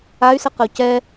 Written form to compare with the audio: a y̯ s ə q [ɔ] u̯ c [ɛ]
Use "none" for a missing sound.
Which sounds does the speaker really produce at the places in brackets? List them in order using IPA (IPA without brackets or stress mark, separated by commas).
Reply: ə, ɛ